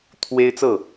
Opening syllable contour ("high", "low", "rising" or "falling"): high